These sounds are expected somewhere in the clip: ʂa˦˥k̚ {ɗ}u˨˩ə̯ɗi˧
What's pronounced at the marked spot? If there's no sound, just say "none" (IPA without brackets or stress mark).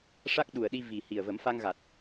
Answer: ɗ